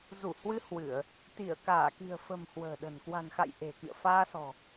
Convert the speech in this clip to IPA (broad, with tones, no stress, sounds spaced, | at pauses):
z u˧˩ h w ɨ˧ h w ɨ˧˩˨ ə̯ | t̪ i˧˩ ə̯ k aː˧˩ k i̤˨˩ ə̯ f ə̤˨˩ m h w ə̤ː˨˩ ɗ ə̤˨˩ n k w a̤˨˩ n x a̰˧˨ j ʔ e̤˨˩ k ḭ˧˨ ə̯ f aː˧ s ɔ̤˨˩